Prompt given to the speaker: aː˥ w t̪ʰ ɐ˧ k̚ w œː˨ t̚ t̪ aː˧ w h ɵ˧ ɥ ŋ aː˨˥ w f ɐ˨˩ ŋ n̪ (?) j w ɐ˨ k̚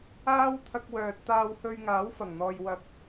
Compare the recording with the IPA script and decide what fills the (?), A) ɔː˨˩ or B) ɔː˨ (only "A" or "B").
B